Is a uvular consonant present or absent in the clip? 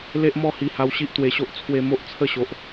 absent